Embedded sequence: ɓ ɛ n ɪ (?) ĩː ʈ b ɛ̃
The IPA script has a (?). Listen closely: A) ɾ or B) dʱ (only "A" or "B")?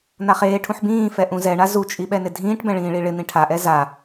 B